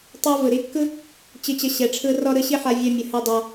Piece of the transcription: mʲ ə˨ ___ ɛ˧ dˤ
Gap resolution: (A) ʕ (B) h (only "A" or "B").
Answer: B